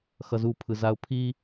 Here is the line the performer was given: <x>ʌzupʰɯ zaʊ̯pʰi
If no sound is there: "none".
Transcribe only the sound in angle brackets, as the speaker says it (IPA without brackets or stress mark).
x